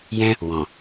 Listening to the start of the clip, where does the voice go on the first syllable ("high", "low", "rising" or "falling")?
high